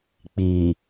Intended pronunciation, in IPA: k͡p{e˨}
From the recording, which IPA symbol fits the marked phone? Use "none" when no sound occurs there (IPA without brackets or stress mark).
i˨